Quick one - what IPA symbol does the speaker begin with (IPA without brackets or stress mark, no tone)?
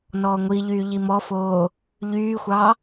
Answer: n